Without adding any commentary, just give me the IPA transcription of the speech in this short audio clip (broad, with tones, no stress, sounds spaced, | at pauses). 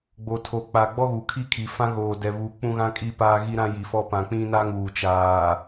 ɡ͡b o˨ tʰ o˨ k͡p a˨ ɡ͡b ɔ˦ ɣ u˨ kʰ i˦ kʰ i˨ f ã˦ ɣ oː˨ d ɛ˨ β u˨˦ k͡p ũ˦ ɣ ã˦ kʼ i˦ p aː˦ ɣ i˦ ɾ ã˦ j i˨ f ɔ˦ p ã˨ k͡p ĩ˦ n a˦ ŋ uː˨ t͡ʃ aː˨